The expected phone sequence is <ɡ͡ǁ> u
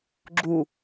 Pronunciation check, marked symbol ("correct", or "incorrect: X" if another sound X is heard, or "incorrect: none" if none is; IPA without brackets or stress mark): correct